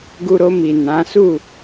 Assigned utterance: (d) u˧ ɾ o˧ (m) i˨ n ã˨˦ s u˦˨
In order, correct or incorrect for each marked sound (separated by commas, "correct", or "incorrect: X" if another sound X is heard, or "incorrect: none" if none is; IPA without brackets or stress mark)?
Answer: incorrect: ɡ, correct